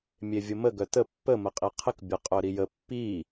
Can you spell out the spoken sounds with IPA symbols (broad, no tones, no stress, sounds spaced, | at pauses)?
mʲ e vʲ ə m ə ɡ œ t ə pː ə m ə qʼ i qʰ ə k bʲ ə qʼ œ ɾ i j ə pː i